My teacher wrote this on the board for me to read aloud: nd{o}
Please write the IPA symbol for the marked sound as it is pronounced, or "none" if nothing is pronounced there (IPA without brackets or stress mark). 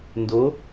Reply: o